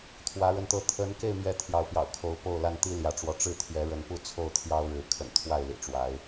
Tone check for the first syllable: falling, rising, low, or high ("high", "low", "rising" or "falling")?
rising